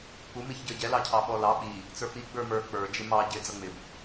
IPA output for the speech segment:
k͡p u m i ç ɟ ə˞ ɟ ɛ l ɑ cʰ ɑ ɓ ɔ l ɑ ɓ i | t͡s ə˞ p i ɡ͡b ə˞ m ə˞ k͡p ə˞ d͡ʒ ɪ m ɑ ɟ ɪ d͡z ʌ ŋ͡m ɪ b

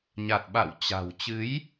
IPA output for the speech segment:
ɲ a˨˩ t̚ ɓ a̰˧˨ w t͡ɕ a̤˨˩ w t͡ɕ ɨ˨˦ j

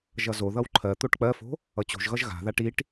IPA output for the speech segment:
ʒ ʌ z o ð ʌ w ǃʰ ɜ t̪ o ʈ k͡p ɜ f o̤ | ʌ t͡ɕ o̤ ʒ ɣ ʌ ʒ ɣ a̤ ð a ʈ i ʈ

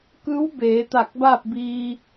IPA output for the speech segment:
k ɯː˧˥ w b eː˩˧ t̪ a˧˩ k̚ b aː˥˨ p̚ b iː˧

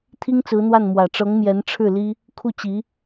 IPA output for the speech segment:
t̪ʰ i˥ ŋ t͡s ɹ̩˧˥ n̪ w a˥˩ n m w ä˨˩ ʈ͡ʂ ɤ˧˥ ŋ m j ɛ˧˥ n ʈ͡ʂʰ ɻ̩˥˩ l i˥ | kʰ u˥˩ t͡ɕ i˧˥

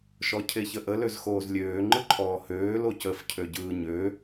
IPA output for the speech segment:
ʃ ɔ cʰ e ç ə ʔ ə l ø z x oː z lʲ øː ŋ͡ǃ ɯ ǃʰ ɔː h øː l o c ə f cʰ ø ɟ ɯː ɲ ø

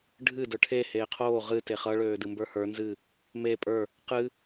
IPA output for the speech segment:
ɖʱ ɨ d ə˞ ʈʰ e h eː qʰ oː ʁ ɨ t e χ ʌ ɭ øː d ɨ m b ə˞ h ə˞ n z ɨ | m e pʼ ə˞ | q ɨ

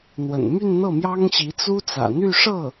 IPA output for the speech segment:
n̪ w ə̰˨˩ n m y˥˧ n n̪ ɤ˥˩ m j ɑ˥ ŋ ɕ i˧˥ t͡s u˥ t͡s ä̰˨˩ n̪ y˥˧ ʂ ɤ˥˩

